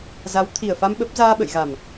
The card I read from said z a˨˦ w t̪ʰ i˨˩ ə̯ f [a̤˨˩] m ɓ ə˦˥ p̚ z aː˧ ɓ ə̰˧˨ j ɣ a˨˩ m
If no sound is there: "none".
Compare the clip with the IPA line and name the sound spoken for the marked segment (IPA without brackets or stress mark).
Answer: a˧